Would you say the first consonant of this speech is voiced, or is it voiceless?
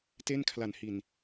voiceless